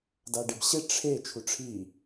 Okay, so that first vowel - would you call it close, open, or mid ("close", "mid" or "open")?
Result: open